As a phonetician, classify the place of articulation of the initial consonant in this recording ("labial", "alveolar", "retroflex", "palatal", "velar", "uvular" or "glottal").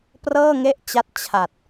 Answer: labial